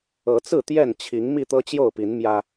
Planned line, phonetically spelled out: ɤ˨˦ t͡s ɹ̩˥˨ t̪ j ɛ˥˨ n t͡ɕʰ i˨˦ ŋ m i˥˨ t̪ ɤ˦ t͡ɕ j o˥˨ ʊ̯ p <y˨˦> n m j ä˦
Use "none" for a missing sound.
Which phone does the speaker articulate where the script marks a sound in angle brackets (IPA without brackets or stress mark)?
i˨˦